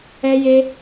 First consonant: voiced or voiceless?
voiced